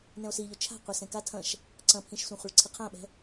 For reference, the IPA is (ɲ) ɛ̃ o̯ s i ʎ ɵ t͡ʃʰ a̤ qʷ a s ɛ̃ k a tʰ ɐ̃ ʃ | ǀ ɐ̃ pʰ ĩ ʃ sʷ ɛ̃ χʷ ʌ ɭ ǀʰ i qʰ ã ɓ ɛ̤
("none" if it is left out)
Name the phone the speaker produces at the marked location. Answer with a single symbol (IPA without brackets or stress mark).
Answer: n